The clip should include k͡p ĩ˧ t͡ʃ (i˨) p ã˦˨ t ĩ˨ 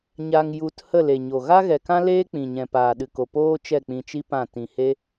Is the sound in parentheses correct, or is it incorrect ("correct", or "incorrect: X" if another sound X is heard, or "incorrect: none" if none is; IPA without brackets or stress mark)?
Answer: incorrect: i˦